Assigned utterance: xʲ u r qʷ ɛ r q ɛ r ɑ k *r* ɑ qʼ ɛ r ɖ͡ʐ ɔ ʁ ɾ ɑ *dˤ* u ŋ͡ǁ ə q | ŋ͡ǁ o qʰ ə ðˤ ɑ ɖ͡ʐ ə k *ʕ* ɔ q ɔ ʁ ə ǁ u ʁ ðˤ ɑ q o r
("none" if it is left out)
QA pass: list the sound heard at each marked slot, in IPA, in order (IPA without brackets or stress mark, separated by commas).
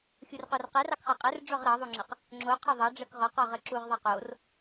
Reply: χ, ðˤ, ʁ